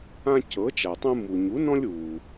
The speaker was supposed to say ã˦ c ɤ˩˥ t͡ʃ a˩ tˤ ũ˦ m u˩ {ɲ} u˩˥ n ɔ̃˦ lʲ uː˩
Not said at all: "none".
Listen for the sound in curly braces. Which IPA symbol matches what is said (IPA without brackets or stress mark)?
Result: ɲ